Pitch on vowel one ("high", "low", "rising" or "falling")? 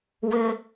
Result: low